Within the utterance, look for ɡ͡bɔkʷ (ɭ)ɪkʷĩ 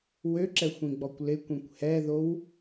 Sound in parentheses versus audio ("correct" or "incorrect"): incorrect